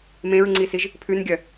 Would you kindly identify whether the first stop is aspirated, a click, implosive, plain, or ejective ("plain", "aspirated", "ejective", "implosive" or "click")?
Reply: click